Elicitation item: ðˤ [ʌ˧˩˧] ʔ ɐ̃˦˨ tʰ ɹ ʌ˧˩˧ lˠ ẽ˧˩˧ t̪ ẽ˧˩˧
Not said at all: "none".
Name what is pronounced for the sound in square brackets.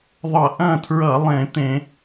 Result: ʌ˧˩˧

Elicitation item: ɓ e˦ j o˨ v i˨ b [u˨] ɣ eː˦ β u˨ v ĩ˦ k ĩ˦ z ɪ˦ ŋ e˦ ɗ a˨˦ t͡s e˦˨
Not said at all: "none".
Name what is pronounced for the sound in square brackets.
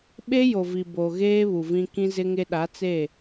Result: o˨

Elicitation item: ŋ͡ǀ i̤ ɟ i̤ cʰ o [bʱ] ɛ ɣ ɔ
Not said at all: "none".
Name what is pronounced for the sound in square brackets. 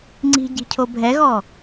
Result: bʱ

